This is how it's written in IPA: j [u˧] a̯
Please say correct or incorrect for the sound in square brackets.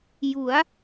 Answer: incorrect